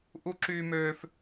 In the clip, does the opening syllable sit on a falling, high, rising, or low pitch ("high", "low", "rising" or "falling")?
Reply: high